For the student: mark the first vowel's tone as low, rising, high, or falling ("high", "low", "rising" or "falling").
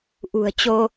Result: low